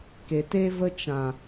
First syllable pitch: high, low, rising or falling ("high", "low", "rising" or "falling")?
low